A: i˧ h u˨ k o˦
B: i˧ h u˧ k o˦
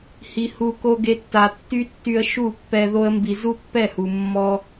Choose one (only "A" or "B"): B